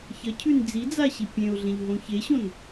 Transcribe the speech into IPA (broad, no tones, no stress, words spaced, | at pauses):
çɐcʰʉn d͡zid͡zaɕi pʲẽʊ̯ɮẽʎɦõ çeɕõn